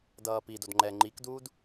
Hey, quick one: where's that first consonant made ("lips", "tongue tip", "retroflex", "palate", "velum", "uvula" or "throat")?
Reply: tongue tip